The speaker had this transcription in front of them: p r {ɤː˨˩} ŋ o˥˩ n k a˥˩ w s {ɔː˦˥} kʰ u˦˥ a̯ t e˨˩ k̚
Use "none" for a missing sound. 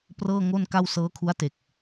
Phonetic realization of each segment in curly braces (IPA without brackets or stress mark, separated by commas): ɤː˥˩, ɤː˦˥